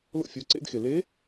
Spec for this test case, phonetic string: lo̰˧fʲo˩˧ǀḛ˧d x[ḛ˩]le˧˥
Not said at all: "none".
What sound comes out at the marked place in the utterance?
e˩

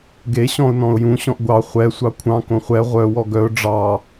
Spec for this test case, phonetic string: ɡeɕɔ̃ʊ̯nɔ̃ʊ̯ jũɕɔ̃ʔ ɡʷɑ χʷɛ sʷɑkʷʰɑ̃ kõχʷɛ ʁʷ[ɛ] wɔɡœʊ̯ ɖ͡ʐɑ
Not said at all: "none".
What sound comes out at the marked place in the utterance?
œ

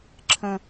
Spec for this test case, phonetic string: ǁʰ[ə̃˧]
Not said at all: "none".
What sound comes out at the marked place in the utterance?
ə̃˥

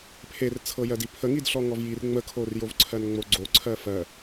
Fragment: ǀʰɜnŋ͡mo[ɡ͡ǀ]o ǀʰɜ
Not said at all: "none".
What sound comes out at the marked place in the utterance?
ɡ͡ǀ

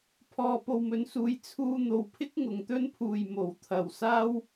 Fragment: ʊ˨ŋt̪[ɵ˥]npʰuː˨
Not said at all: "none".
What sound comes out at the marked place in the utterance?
ɵ˥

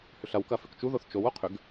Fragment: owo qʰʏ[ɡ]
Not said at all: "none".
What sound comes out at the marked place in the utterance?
ɡ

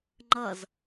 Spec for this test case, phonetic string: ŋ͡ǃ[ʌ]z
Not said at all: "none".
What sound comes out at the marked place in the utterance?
ʌ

